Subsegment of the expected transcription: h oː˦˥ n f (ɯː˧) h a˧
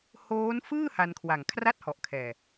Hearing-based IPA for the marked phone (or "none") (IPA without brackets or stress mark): ɯː˥˩